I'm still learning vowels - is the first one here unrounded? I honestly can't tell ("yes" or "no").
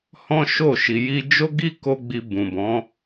no